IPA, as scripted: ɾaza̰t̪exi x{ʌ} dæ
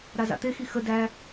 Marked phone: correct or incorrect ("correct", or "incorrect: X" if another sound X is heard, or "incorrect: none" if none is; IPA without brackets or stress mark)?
incorrect: ə